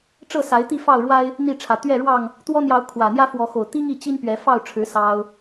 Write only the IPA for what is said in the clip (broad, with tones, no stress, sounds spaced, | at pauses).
ʈ͡ʂ ɤ˥˨ s a˨˦ ɪ̯ t̪ i˥˨ f ɑ˥˨ ʊ̯ ɻ w a˦ ɪ̯ | n̪ i˥˨ ʈ͡ʂʰ ä˨˩ t̪ ɥ ɛ˥˨ ɻ w ɑ˥˨ ŋ | t̪ w ɔ˦ n̪ j ɑ˨˦ ʊ̯ kʰ w ä˨˩ n̪ j ä˦ f w ɔ˨˦ x o˨˩ ʊ̯ t̪ i˦ ŋ i˥˨ t͡ɕ i˦ n p ɥ ɛ˨˦ f ɑ˥˨ ʊ̯ ʈ͡ʂʰ ɻ̩˨˦ s ɑ˦ ʊ̯